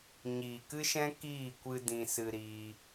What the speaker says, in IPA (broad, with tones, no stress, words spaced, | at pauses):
ɲiː˨kɨ˦ʃɛ̃˦ kiː˦˨kʷɨ˧ dĩ˧sɨ˧ ɾiː˧